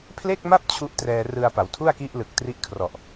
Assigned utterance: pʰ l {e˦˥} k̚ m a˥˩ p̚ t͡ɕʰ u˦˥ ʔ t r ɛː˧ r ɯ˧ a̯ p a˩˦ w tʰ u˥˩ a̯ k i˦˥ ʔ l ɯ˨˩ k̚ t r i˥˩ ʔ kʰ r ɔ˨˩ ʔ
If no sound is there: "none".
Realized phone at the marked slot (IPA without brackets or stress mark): e˥˩